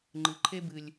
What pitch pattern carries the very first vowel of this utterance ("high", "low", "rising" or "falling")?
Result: low